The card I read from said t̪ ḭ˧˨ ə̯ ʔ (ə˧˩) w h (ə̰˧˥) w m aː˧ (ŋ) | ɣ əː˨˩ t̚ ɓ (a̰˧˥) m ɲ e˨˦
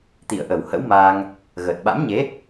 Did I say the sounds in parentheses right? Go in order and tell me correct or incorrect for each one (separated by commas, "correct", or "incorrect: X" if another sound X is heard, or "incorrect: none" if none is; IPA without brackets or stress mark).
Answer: correct, correct, correct, correct